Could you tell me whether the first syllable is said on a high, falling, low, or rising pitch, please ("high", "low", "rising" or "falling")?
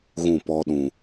falling